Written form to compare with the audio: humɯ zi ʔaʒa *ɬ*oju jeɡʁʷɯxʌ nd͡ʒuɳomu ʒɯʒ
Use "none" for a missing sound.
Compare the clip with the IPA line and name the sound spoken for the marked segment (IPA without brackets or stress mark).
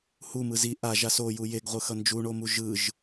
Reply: s